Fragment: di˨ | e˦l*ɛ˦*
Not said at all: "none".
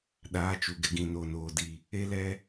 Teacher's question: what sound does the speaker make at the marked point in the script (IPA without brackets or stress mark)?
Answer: ɛ˦